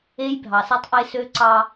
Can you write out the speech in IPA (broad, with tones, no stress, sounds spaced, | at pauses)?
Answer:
e˦ j bʱ ɑ˨ s e˦ tˤ ʔ e˦ s ø˦ ǀ ɑ˦